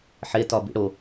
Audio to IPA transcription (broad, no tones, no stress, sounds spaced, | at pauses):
ħ e t ɒ b ḭ ɽ o